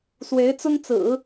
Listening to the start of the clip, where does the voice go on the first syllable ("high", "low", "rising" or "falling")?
rising